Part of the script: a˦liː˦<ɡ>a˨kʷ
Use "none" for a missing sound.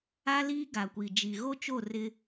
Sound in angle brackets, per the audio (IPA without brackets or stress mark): ɡ